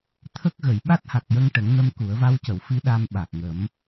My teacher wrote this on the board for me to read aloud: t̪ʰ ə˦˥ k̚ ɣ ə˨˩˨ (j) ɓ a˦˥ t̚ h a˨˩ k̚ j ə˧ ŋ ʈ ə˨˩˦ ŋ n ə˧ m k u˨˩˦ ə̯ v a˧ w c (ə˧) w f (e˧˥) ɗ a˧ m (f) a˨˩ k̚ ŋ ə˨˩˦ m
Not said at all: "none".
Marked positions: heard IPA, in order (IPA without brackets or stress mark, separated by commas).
j, ə˨˩˨, i˧˥, ɓ